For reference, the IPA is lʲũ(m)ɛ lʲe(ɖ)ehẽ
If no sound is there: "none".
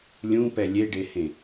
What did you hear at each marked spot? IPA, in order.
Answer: p, ɖ

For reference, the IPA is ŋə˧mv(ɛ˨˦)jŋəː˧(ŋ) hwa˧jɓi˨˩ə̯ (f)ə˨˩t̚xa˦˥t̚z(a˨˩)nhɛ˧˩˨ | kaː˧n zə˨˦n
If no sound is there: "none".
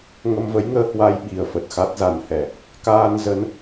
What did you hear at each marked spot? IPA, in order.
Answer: ə˨˦, none, f, a˨˩

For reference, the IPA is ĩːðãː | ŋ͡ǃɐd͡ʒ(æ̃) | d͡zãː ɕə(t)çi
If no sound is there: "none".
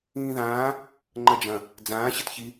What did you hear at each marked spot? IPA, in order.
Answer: ɐ̃, t

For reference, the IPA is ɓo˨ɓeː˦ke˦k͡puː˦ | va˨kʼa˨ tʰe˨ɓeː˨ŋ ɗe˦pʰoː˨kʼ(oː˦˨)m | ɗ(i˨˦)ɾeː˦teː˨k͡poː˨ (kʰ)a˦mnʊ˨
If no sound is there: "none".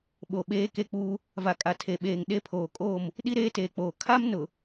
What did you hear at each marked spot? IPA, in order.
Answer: oː˦˨, i˦, kʰ

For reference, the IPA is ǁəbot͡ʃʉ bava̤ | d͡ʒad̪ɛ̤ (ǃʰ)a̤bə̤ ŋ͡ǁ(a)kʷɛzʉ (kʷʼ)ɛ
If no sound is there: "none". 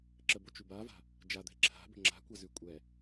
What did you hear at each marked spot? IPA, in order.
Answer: ǁʰ, a̤, kʷʼ

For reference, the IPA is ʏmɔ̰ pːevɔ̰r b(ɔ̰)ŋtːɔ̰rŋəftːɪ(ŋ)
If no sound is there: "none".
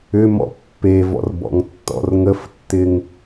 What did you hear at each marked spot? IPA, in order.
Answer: ɔ̰, ŋ

